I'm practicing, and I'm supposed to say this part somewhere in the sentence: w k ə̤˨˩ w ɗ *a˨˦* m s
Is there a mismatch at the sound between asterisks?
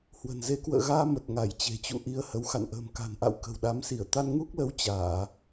no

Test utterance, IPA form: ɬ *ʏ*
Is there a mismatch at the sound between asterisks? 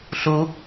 yes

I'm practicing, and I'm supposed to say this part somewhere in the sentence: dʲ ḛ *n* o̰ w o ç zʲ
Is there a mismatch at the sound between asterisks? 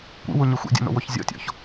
no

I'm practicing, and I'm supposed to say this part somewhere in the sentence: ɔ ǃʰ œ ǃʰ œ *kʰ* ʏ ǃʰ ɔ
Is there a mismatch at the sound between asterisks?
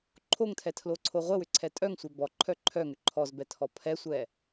yes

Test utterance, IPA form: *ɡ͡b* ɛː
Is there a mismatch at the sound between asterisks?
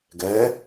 yes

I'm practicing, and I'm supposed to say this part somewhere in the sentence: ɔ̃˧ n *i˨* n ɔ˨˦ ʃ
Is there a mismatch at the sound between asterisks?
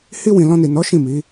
no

